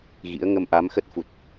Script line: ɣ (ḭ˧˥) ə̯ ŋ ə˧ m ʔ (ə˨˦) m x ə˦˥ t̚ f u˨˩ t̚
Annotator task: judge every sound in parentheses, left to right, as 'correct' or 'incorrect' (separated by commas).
correct, incorrect